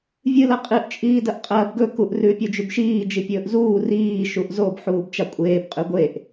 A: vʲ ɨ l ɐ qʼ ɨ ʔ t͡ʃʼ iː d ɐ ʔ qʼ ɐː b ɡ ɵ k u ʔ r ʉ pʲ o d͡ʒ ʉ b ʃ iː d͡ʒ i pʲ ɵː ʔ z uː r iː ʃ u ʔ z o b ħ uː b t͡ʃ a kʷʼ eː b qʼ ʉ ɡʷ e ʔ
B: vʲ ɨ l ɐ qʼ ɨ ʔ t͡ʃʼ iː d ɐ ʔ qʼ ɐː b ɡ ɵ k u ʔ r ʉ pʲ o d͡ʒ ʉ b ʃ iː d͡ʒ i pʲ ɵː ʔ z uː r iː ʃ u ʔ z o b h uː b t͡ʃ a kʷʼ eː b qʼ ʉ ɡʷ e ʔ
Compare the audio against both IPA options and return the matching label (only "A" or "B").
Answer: A